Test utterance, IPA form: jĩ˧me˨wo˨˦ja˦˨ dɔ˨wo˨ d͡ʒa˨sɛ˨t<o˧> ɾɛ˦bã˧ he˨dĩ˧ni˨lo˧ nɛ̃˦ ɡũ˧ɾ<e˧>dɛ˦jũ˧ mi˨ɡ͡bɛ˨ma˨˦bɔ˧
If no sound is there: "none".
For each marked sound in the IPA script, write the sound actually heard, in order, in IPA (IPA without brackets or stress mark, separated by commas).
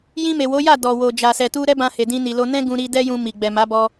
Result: u˧, i˧